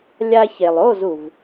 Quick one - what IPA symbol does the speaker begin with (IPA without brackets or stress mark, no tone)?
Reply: lʲ